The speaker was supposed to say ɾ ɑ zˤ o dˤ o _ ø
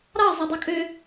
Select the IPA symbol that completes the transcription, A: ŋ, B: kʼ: B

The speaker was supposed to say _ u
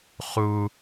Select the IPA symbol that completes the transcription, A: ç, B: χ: B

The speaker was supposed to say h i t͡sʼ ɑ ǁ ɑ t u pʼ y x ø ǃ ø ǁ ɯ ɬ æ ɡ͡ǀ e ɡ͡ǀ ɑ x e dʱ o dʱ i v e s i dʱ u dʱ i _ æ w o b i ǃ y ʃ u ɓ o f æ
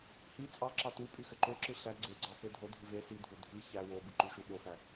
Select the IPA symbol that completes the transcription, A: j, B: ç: B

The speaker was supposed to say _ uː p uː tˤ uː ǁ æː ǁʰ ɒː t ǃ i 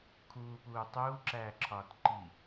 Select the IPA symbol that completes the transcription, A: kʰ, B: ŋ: A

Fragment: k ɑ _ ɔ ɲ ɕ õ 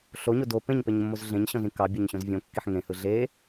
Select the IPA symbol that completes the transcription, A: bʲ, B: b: A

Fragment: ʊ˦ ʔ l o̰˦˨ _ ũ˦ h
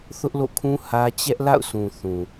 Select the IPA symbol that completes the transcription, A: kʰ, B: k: A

